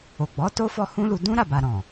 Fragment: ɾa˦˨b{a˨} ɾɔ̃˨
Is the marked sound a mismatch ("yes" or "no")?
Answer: no